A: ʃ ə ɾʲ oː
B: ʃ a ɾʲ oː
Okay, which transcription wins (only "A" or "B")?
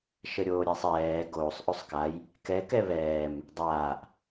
A